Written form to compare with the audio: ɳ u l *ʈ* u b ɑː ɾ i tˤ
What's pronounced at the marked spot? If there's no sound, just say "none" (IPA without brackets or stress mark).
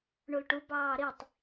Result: ʈ